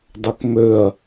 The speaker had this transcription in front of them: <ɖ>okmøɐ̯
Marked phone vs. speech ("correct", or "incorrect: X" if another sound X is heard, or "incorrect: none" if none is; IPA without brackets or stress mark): incorrect: dˤ